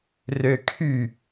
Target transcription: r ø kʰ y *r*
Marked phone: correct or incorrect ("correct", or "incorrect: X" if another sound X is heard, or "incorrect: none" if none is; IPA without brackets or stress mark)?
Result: incorrect: none